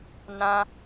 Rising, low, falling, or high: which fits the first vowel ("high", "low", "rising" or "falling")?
high